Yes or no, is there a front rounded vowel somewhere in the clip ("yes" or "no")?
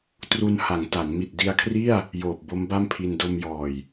no